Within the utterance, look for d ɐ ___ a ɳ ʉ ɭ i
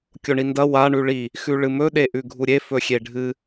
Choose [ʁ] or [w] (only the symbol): w